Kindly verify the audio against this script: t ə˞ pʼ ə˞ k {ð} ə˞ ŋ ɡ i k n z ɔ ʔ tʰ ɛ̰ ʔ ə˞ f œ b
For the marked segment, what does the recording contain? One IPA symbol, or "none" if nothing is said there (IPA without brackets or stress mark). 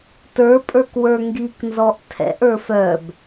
w